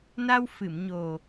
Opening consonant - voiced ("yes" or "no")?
yes